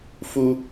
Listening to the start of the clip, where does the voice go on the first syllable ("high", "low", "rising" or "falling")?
high